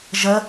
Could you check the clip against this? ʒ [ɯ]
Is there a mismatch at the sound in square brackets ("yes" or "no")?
yes